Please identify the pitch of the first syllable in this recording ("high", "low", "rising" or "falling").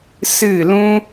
falling